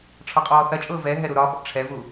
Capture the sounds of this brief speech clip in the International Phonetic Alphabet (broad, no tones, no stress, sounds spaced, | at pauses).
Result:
ʈ͡ʂʰ ɒ qʼ ɔː θ ɐ t͡ʃʼ ʊː v ɛ ɦ ɛ ɾ u ɾ ɒ ɓ ɔ̰ ʈ͡ʂʰ ɛ v u